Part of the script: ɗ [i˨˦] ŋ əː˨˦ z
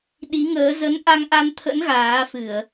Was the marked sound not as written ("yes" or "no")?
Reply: no